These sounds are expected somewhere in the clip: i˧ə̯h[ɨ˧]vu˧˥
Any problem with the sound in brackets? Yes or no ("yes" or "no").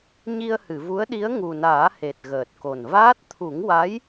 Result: yes